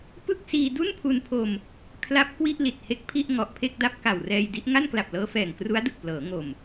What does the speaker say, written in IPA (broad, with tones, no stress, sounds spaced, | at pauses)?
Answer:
p ɯ˥˩ k̚ s iː˧ d u˥˩ n pʰ u˧ n pʰ o˧ m | kʰ l a˦˥ p̚ k w i˥˩ ʔ l i˨˩ t̚ h e˦˥ k̚ pʰ i˥˩ ʔ ŋ ɔ˨˩ ʔ pʰ e˥˩ k̚ d a˥˩ p̚ k a˨˩ w r ɛː˧ j d i˦˥ ʔ ŋ a˥˩ n k l a˨˩ p̚ l ɤː˦˥ f ɛː˨˩ ŋ k r u˦˥ a̯ d ɯ˨˩ k̚ p l ɤː˩˦ ŋ o˨˩ m